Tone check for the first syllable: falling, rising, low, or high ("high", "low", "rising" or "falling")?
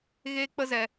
high